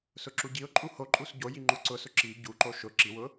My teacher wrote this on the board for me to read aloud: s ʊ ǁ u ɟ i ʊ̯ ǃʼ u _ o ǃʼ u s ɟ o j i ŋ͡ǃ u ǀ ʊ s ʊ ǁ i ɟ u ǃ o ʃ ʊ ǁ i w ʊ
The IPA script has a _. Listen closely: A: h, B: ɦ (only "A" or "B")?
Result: A